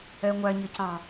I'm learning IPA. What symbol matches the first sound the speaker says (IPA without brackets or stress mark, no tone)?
ɛ